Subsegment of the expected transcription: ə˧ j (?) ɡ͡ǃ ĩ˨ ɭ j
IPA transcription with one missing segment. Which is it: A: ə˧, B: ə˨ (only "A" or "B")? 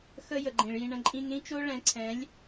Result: B